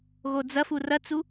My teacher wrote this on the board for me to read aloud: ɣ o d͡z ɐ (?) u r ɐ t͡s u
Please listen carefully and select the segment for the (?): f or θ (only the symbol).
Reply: f